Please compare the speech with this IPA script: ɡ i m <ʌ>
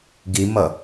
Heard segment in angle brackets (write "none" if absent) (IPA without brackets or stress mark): ʌ